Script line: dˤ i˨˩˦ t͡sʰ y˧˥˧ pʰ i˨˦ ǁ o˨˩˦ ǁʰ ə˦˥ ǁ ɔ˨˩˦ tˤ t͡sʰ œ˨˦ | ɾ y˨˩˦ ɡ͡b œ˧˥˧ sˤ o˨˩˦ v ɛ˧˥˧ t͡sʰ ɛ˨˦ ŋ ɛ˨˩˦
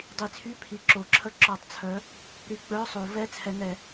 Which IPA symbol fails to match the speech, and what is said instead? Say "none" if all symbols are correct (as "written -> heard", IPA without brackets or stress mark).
none